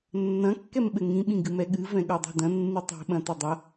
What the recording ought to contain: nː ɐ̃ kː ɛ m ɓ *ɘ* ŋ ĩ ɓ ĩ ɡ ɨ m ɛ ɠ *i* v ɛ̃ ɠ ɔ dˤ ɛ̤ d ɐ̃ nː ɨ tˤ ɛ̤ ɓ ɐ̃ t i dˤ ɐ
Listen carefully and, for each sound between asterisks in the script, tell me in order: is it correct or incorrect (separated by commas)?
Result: correct, incorrect